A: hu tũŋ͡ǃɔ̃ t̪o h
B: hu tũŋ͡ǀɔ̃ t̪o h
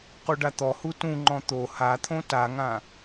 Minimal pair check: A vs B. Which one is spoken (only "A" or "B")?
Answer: A